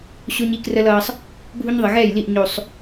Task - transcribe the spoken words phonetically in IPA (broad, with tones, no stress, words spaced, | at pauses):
ɕo˦ɲi˦krə˦lʌː˦sˤ | bʱu˦ɲðˤə˨ ɣɛ˦˨jli˦˨ʔ ɲo˨sˤ